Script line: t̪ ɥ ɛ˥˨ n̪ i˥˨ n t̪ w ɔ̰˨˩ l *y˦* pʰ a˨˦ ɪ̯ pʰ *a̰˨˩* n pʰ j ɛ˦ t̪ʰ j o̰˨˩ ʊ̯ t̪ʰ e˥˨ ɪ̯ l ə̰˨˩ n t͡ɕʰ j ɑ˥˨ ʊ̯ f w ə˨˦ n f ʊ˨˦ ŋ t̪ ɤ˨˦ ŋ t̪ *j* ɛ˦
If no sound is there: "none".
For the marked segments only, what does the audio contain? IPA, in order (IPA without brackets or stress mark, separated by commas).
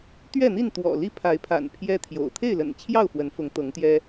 i˦, a̰˨˩, j